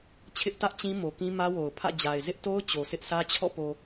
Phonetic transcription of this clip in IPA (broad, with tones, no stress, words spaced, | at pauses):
t͡ɕʰɪ˦ʔtä˦ʔ t͡ɕĩ˦mo˨kĩ˦ mä˦wo˨ʊ̯pʰä̰˦˨d͡ʑa˨ɪ̯ zɪ˦ʔto˦ʊ̯ t͡ɕo˨sʰɪ˦ʔsʰä˦t͡ɕʰɔ̰˦˨ po˨